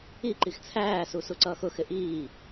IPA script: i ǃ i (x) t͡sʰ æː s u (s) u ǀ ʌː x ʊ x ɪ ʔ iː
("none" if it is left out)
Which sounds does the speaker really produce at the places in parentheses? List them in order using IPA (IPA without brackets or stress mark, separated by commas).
x, s